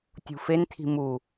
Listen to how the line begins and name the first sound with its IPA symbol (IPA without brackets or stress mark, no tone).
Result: tʲ